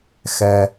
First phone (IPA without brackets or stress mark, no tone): x